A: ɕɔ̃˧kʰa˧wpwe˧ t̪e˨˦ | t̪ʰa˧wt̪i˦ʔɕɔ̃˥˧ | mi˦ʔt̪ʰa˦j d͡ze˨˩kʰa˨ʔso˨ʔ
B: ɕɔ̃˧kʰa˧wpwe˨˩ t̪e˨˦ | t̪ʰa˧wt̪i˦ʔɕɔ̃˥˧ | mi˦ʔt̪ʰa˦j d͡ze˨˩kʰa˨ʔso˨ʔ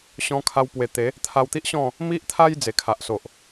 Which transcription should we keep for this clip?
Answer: B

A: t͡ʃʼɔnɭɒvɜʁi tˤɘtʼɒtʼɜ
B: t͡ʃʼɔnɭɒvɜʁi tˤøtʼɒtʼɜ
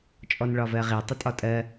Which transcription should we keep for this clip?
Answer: A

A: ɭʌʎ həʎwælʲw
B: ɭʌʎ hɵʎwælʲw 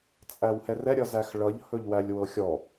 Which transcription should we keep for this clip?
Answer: B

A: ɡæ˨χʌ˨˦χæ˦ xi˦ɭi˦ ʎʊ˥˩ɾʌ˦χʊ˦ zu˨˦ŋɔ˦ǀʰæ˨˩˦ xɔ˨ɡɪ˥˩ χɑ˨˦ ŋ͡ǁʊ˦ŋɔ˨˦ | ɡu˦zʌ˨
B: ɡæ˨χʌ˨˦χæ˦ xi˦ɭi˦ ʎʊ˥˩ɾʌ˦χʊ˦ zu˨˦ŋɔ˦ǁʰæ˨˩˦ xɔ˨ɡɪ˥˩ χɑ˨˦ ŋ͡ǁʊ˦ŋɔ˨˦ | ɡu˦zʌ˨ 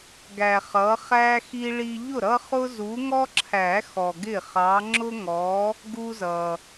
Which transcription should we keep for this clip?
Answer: B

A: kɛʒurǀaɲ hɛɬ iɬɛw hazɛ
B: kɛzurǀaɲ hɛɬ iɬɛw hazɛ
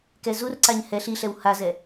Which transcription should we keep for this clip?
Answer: B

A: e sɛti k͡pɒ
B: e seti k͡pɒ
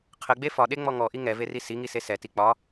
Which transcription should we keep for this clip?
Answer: A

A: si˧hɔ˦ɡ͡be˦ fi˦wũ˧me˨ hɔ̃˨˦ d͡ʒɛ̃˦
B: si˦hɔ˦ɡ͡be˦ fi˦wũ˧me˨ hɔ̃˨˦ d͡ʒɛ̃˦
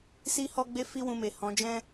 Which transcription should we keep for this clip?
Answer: B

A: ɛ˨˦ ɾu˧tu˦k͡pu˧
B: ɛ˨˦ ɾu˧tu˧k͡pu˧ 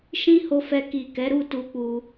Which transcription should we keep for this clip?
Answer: B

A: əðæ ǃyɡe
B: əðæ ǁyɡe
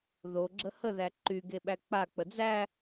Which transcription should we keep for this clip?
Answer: A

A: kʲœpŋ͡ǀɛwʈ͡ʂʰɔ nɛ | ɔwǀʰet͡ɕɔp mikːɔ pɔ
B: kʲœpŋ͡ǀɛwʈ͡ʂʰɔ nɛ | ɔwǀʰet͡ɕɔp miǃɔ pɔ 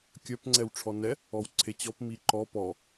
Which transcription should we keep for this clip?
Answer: B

